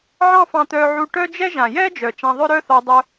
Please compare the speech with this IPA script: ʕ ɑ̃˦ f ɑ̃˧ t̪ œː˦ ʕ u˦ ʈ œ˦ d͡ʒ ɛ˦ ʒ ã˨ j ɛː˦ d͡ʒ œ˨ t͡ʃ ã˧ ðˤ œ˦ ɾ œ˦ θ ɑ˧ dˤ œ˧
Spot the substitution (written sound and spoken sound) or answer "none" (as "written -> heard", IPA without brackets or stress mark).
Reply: none